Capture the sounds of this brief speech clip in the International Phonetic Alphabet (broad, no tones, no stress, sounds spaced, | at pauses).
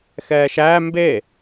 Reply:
x ɛː ʃ æ m b e